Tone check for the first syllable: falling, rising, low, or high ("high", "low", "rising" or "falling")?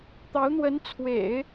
rising